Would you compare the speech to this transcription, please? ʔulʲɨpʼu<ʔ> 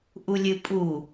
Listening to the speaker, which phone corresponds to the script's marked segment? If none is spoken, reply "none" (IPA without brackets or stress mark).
none